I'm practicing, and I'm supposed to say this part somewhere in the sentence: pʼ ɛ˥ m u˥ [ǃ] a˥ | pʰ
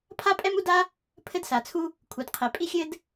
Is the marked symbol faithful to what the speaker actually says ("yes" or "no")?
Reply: no